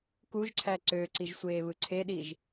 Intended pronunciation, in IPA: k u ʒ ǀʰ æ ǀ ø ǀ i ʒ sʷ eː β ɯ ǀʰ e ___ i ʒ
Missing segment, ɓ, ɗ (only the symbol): ɗ